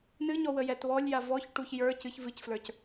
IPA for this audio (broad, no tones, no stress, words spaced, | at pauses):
nɨɲɔ wəjɛtβɔlʲja vɔçʈuç jə˞ cɨç vɨcflə˞c